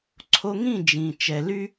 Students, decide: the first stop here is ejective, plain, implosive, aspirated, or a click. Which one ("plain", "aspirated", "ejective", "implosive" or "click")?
click